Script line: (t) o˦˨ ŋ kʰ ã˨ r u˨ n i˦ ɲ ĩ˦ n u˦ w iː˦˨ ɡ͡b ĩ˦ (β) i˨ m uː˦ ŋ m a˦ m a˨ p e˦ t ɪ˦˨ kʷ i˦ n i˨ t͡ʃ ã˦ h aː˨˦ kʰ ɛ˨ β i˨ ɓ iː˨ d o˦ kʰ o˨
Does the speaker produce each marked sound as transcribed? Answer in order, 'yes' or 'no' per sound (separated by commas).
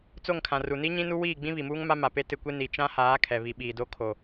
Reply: no, yes